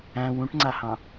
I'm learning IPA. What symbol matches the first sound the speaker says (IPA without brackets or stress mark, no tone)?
æ̃